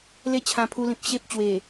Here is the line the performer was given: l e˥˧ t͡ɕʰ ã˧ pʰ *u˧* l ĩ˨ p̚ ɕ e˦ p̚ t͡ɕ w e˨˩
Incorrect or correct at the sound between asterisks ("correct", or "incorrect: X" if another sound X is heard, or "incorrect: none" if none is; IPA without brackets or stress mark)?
correct